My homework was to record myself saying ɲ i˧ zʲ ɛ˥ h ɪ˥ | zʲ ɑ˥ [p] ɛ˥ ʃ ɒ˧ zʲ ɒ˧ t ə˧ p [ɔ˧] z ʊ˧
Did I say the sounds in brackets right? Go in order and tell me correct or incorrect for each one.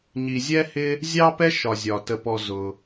correct, correct

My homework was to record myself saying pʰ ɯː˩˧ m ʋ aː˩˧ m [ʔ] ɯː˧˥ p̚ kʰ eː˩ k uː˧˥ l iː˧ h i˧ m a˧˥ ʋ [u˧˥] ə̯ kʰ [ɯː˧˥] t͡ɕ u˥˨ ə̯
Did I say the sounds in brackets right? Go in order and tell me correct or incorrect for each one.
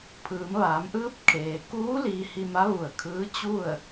correct, incorrect: u˧˩, correct

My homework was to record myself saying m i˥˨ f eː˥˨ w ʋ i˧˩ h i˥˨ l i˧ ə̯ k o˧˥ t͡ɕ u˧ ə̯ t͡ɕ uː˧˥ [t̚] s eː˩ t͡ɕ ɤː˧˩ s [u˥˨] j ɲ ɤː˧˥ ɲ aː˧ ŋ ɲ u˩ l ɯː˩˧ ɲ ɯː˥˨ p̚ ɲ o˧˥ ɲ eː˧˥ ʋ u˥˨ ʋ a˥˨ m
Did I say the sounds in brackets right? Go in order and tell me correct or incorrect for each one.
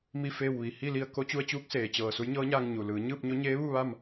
incorrect: k̚, incorrect: u˧˥

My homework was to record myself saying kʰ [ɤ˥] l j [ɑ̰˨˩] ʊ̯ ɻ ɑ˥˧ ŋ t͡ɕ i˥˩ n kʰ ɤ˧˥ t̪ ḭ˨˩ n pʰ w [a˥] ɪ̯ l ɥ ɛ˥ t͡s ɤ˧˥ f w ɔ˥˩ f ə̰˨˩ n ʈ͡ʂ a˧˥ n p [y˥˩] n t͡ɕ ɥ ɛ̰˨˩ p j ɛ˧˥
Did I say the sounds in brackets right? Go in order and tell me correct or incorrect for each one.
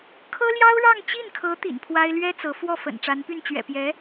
correct, incorrect: ɑ˥, correct, correct

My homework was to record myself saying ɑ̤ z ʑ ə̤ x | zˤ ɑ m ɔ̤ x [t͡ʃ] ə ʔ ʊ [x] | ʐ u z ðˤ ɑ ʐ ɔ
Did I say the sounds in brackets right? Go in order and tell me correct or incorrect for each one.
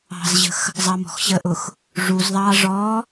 incorrect: ɕ, correct

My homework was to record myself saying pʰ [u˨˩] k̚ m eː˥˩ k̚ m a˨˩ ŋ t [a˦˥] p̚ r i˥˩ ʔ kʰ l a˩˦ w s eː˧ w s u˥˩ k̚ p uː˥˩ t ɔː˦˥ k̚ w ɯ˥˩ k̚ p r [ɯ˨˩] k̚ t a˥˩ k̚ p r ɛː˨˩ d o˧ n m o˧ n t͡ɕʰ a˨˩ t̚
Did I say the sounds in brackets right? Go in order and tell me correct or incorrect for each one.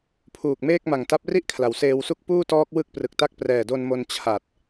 incorrect: uː˨˩, correct, correct

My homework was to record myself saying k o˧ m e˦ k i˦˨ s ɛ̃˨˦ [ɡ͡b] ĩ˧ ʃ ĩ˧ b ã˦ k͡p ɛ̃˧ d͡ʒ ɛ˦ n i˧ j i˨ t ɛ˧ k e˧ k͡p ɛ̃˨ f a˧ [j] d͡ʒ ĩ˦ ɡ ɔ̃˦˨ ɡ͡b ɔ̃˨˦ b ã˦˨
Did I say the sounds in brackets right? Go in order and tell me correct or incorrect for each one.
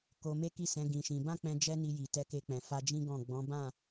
incorrect: ɡ, incorrect: none

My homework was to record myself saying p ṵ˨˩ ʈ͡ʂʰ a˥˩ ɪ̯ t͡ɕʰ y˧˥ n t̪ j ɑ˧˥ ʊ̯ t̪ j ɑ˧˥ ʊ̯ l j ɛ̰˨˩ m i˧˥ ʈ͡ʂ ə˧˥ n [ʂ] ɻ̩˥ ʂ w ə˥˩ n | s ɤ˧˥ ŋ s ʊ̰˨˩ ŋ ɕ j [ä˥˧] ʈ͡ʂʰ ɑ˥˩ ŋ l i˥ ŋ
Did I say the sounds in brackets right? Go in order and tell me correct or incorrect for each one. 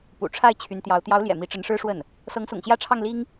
correct, correct

